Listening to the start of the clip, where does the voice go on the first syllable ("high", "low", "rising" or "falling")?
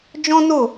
high